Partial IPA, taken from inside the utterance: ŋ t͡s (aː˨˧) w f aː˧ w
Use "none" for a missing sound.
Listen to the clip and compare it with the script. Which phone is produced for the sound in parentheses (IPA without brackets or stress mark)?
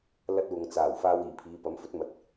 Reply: aː˨˩